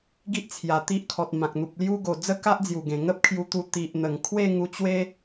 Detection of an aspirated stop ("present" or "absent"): present